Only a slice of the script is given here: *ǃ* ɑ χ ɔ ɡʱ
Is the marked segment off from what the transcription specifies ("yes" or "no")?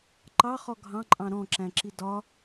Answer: no